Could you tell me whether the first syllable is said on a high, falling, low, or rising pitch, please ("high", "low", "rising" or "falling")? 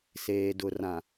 low